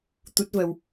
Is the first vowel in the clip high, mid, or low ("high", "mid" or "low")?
high